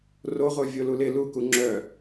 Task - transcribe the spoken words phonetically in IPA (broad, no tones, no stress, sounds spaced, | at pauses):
r o ʁʷ œ vʲ o l u l ɪ l u k u ŋ͡ǁ œ